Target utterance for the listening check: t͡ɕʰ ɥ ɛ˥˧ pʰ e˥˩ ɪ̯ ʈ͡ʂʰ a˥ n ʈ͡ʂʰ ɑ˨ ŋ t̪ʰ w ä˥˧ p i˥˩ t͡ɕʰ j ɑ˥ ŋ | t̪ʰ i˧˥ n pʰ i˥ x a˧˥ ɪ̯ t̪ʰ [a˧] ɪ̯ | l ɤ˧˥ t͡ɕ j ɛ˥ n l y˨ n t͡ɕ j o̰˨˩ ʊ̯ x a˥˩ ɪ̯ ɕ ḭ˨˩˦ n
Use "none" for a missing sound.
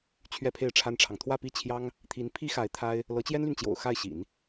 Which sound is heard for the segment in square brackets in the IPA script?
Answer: a˥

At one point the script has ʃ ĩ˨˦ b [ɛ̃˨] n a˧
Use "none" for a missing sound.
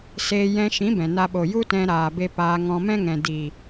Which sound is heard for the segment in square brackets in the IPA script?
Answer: ɛ̃˨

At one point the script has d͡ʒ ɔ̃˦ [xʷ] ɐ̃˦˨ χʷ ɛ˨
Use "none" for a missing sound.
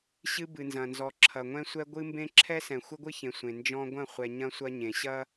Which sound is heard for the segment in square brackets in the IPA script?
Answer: ɡʷ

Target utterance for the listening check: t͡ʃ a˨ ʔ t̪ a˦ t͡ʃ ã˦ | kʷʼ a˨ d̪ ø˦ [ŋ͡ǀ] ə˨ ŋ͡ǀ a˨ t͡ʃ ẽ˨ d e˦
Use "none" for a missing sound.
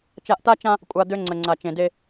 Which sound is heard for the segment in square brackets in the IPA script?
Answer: ŋ͡ǀ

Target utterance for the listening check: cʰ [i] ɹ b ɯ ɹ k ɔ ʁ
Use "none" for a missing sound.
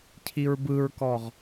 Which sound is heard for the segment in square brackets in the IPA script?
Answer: i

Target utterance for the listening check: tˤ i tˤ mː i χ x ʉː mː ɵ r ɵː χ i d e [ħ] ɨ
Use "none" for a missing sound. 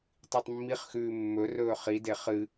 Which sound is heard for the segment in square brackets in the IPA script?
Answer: χ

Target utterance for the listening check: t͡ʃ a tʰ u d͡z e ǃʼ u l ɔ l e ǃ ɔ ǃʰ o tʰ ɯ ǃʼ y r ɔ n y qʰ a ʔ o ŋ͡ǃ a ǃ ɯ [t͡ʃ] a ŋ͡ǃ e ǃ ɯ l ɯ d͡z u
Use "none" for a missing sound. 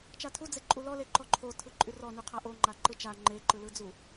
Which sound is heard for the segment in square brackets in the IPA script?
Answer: t͡ʃ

